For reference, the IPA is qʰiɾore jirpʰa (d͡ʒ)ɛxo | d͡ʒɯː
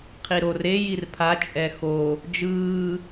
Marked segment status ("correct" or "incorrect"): incorrect